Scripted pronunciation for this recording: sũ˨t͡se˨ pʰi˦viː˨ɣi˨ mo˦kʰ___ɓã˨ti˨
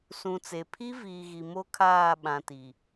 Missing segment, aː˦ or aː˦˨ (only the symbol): aː˦˨